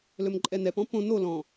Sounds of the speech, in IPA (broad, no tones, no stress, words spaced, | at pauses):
lɵmǃʼɛnɛpɔ̃ põ no lɔ̃